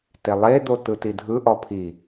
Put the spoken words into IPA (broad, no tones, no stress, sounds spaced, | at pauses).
t e lˠ e d̪ o t ɯ t i dʱ ɯ ʔ ɔ pʰ i